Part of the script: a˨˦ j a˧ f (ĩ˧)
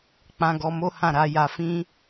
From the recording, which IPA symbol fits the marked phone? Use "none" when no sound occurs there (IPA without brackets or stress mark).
ĩ˦